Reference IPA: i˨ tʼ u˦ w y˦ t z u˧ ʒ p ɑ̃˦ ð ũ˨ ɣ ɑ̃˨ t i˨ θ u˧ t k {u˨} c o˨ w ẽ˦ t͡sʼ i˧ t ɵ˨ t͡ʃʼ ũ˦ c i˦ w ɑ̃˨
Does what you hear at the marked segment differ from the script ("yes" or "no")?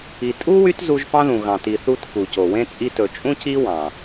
no